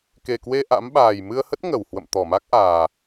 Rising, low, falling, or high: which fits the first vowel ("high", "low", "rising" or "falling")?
low